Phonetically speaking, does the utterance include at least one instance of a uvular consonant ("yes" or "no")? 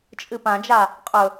yes